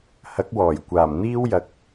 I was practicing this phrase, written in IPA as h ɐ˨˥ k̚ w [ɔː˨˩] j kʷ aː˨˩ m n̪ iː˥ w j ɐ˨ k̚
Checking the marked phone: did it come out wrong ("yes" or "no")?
no